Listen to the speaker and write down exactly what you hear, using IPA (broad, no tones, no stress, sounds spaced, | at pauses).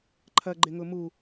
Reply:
ǃʰ ɐ ɡ͡ǃ ɪ ŋ ʊ m u